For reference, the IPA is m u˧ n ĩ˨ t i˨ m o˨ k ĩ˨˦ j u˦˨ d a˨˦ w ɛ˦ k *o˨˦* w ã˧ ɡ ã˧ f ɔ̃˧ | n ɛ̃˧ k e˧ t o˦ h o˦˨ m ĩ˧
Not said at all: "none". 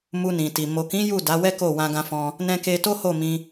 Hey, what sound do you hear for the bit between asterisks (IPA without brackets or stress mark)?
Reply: o˦˨